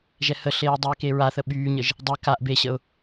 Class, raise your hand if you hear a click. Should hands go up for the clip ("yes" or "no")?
no